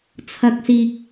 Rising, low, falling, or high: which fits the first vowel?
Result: low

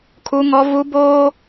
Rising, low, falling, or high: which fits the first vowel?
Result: high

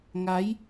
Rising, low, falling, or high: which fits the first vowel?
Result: rising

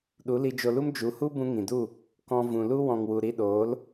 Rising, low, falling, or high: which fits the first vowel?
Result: rising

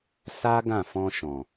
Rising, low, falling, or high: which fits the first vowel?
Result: high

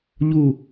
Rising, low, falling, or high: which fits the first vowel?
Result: falling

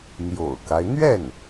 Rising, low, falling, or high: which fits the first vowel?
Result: low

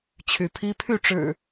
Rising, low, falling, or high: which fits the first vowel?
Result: rising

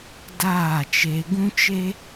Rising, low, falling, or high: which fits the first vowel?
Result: falling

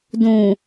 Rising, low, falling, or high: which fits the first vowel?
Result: low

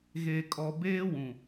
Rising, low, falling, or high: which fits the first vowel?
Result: low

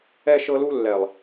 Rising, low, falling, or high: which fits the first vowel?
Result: high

